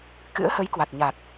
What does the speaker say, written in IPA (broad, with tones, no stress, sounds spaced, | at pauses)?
k ɨ̰˧˥ ə̯ h ə˨˦ j k w a˨˩ t̚ ɲ a˨˩ t̚